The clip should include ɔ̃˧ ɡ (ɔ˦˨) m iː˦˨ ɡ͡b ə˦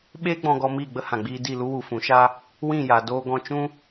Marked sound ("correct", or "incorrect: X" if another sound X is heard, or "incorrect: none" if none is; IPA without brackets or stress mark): incorrect: ɔ˧